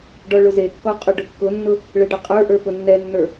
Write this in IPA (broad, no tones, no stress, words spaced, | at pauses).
ɖɔɭʊzekːɔ qʼʊɖʊkːʊnːʊ | ɭɛɖʌqʼə˞ʔə˞ pʊnːɛnːə˞